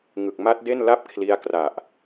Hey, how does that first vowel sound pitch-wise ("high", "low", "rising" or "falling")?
low